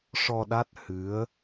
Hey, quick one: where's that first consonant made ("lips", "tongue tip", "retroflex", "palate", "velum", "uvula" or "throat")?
retroflex